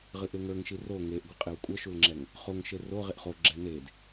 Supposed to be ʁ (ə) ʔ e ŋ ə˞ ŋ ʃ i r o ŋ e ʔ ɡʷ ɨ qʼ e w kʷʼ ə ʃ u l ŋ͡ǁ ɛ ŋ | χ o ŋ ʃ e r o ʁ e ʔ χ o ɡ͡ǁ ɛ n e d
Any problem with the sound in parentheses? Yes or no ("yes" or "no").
yes